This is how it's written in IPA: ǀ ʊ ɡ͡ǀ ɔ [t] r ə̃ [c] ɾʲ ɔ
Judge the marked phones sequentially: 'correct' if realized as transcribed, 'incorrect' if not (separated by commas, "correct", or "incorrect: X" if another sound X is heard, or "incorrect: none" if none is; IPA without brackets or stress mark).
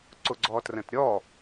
correct, incorrect: t